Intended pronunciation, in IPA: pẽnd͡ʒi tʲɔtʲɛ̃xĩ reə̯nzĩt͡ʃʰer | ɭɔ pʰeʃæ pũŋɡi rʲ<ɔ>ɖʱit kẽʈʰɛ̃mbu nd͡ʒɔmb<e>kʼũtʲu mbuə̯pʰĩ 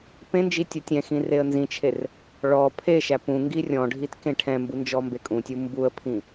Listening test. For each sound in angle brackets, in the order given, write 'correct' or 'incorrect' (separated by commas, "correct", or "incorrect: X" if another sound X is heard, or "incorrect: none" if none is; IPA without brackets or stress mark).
incorrect: ɔ̃, correct